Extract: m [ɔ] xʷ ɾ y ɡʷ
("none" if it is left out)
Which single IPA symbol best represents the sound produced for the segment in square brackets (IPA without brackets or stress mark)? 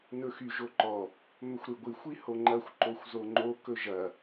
ɵ